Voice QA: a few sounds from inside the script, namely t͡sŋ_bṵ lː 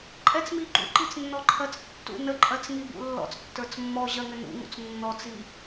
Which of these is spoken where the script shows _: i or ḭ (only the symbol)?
i